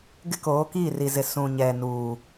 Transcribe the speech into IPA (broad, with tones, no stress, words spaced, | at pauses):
ɡɪ˦koː˨˦ kiː˦˨ri˨zɪ˨ sũ˨ɲɛ˨ nuː˨